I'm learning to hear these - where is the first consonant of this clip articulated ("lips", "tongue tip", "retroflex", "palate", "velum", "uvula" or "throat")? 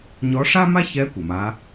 palate